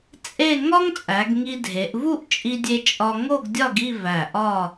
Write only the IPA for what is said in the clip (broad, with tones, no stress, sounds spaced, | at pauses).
t͡sʼ e˥˧ ŋ ɒ˥ ŋ t͡sʼ æ˩˧ ɡ ŋ i˧ dʱ e˩˧ ʔ v u˥˧ ʔ t͡ʃʼ i˧ dʲ e˧ t͡ʃʼ ɒ˥ ŋ o˥˧ ɡ dʲ ɒ˥˧ ɡ i˥˧ v æ˧˩ ʔ ɒ˥˧